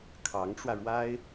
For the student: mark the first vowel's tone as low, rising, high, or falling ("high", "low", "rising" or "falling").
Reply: rising